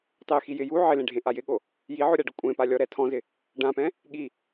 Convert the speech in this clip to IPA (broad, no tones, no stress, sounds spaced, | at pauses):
tˤ e x i j ɪ j u ʕ ɪ l ẽ ɖʱ ẽ ʔ a j ɪ ɠ o | j i ʕ o ɾʲ a ɖ ʊ kʷʼ ẽ p a lʲ ɔ ɾ ɛ tʰ ɔ̃ z ɪ | ɖ ã p ɛ̃ | ɠ i